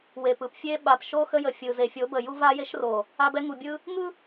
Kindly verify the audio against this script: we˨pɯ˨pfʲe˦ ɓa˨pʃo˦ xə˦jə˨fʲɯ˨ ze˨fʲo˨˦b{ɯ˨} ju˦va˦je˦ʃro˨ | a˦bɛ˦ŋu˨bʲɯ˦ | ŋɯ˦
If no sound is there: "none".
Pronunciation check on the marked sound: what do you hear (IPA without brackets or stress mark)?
ə˨